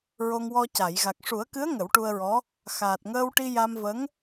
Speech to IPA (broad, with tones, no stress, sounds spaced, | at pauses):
ɹ o˧ ŋ w ɔ˧ c a˨˩˨ j ɣ a˨˩ k̚ ʂ u˨˩˦ ə̯ k ɨ˧˥ ə̯ ŋ ə˨˩˦ w ʈ u˧ ə̯ ɹ ɔ˧˥ | x aː˨˩ t̚ ŋ əː˧ w ʈ i˧ j a˧ m v ə˧˥ ŋ